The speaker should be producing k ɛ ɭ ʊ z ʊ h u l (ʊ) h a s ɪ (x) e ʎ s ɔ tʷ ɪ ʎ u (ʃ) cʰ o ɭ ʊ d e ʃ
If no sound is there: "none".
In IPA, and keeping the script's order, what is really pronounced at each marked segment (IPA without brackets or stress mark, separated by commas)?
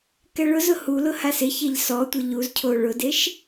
ʊ, ç, z